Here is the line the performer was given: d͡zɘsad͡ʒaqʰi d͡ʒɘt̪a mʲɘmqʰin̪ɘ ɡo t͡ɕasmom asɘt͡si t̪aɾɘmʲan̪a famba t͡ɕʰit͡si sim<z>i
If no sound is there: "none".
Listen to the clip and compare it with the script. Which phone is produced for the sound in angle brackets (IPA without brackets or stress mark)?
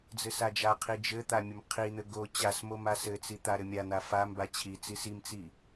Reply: t͡s